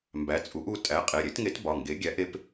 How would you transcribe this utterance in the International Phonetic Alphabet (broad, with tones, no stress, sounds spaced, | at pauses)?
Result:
m b æ˨˥ t͡sʼ u˨˥ ʔ u˩˧˩ tʼ æ˨˥ qʼ e˩˧˩ ɾʲ e˨˥ t ŋ e˨˥ t b ɒ˩˧˩ ŋ ɡ e˨˥ ɡʲ æ˨˥ ʔ e˨˥ p